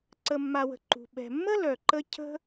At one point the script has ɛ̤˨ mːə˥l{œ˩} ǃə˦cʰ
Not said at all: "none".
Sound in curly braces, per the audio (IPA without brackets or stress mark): œ˩